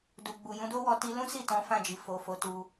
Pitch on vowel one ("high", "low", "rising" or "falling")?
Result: low